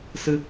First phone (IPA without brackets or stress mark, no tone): s